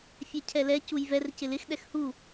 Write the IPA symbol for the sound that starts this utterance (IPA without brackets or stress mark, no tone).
fʲ